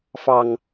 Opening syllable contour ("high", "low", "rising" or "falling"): low